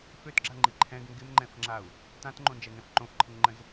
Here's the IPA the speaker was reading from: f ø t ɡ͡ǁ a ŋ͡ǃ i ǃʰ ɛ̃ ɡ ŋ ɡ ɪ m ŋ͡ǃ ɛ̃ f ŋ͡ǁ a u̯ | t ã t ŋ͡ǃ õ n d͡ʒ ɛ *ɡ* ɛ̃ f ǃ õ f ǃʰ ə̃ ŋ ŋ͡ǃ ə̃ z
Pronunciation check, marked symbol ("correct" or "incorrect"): incorrect